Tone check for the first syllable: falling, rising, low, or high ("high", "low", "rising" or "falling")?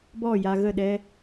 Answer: falling